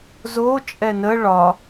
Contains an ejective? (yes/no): yes